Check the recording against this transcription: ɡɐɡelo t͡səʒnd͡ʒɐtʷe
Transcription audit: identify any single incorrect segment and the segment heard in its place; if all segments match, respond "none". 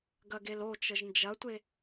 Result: t͡s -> t͡ʃ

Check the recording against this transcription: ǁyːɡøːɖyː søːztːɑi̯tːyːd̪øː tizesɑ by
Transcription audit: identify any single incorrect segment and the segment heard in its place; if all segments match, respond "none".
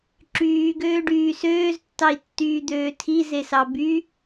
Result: t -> tʰ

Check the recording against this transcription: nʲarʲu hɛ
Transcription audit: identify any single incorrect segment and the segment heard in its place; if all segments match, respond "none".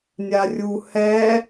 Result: none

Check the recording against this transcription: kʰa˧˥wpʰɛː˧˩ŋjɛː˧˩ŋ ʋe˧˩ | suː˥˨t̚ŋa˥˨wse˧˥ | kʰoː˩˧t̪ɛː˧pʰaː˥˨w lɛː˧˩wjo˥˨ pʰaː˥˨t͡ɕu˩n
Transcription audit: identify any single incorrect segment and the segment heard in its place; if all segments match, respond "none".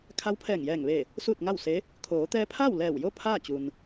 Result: none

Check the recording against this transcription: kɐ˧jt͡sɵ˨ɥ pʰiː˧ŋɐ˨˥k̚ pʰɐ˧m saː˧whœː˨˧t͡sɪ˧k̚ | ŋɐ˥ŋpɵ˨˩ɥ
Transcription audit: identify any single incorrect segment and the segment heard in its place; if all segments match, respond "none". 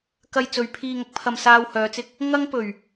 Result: none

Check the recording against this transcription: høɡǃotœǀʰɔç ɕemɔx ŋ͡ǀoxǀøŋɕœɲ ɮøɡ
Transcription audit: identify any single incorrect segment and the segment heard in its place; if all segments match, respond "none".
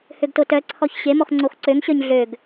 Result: ǃ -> t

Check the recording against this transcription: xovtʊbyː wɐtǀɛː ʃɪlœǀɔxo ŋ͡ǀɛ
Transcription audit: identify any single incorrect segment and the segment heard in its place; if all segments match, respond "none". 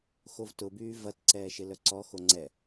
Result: w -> v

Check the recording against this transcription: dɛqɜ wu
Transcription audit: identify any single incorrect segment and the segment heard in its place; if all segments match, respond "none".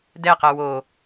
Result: u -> o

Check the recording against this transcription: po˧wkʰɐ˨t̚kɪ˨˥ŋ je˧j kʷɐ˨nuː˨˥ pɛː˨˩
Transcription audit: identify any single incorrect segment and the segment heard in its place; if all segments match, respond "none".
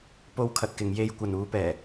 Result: ɪ˨˥ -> ɪ˨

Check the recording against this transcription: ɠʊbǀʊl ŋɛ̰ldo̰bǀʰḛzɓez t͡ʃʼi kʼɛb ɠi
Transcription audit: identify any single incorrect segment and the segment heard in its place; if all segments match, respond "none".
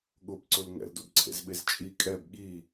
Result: none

